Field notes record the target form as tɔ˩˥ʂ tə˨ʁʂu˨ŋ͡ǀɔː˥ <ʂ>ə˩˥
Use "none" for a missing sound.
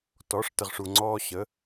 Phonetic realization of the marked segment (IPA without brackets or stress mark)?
ɕ